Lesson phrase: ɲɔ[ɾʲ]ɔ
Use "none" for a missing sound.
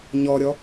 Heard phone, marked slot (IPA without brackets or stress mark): ɾʲ